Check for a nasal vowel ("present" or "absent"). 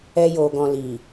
present